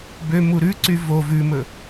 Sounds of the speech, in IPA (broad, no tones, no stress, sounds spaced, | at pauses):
b ø m u ɾ ʉ ǀ y v o v ʉ m ɵ